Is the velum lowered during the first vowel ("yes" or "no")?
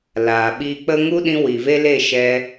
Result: no